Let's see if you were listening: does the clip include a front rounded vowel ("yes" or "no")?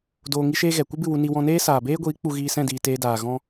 no